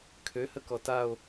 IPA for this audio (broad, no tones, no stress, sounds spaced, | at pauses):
kʰ ø h ə k ɔ t a o̯